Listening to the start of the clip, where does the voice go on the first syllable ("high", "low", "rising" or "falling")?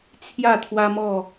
falling